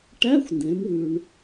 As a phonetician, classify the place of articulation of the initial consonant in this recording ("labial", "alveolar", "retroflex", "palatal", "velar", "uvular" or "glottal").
retroflex